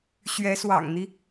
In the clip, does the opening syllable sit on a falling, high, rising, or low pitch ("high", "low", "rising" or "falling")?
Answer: rising